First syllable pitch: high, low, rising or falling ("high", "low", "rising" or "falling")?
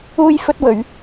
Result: high